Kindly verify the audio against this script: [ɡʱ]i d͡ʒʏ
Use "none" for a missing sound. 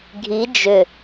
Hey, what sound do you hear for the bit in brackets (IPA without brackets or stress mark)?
ɡʱ